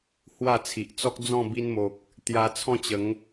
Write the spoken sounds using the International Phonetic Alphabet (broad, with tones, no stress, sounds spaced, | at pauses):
h w a˥˧ t͡sʰ i˨ ʔ t͡s ɔ˦ k̚ d͡z ɔ̃˥˧ b i˧ n m o˨ k̚ | t̪ j a˧ t͡sʰ ɔ̃˥˧ t͡ɕ ə˨˦ ŋ